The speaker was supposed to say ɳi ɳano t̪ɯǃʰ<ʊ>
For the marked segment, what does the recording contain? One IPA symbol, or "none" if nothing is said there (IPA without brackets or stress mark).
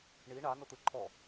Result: ɔ